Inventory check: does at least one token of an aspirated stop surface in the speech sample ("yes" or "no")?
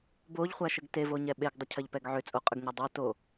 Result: yes